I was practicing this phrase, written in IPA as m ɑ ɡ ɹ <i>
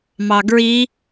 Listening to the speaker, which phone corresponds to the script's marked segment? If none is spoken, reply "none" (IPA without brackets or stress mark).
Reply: i